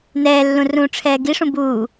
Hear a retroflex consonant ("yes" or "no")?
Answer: yes